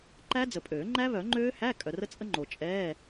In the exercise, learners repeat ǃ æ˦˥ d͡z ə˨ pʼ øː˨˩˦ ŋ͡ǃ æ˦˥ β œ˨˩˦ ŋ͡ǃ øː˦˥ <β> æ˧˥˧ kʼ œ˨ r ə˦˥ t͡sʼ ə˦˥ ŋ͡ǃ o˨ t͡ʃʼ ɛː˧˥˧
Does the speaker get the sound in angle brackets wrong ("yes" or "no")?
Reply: yes